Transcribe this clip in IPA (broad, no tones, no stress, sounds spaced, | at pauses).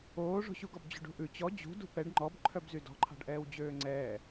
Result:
oː ʐ o̤ ɕ u ɡ ɔ b d͡ʑ o̤ ɖ ṳ ʔ ʉ t͡ɕ ɔ d͡ʑ ṳ d ṳ p ɛ ɖ ŋ͡ǃ ɔ b ǃʰ œ b z y d ɔ̤ ǃʰ ɑ̤ ɖ ʔ ɛː w d͡ʑ øː ŋ͡ǀ ɛː